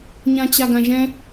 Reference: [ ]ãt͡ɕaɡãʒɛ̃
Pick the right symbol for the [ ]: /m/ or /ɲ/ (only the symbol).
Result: ɲ